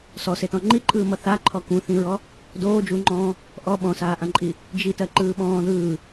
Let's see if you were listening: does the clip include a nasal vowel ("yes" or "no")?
yes